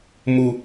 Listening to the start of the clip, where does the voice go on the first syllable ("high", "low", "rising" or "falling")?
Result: low